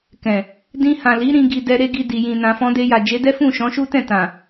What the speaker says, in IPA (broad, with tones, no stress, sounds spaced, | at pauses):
k ɛ̃˨ | d ĩ˧ h ã˨ l i˨˦ ɾ ĩ˦ ɡ i˧ d ɛ˦ ɾ e˦ ɡ i˧ d i˨ j ĩ˨ n ã˨ f ɔ̃˧ d e˧ j a˨ d͡ʒ e˨˦ d ɛ˦ f ũ˦˨ ʃ ɔ̃˨˦ ʃ u˦ t ɛ̃˦˨ t ã˨